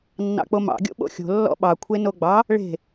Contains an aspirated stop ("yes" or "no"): yes